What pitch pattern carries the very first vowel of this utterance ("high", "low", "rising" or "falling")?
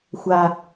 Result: low